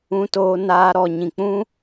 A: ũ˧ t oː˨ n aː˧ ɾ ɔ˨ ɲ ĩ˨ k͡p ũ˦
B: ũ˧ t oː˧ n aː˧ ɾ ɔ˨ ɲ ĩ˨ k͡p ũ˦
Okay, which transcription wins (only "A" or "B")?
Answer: B